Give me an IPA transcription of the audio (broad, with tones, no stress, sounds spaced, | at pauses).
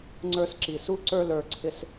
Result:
ŋ͡ǀ ə˞˦ s ǁ i˨ s u˦ ǀ ə˞˦ l ə˞˧ ǀʰ ɪ˦ s